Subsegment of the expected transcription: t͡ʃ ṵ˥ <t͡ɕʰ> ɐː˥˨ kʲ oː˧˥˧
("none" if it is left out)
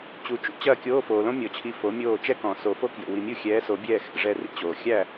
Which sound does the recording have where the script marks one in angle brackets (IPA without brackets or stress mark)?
t͡ɕ